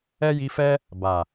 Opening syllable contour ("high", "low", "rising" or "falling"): high